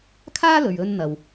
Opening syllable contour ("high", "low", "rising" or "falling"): high